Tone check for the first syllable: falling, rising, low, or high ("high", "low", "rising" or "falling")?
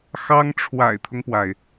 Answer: high